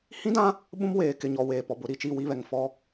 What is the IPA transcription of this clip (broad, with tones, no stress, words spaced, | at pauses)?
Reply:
hĩ˦dã˦ | ɓũ˦m weː˨kɪ˨ɲɔ˨ weː˨pɔ˨bʊ˨˦ ɾi˨t͡ʃi˦˨wi˦βɛ˨ŋ fɔ˦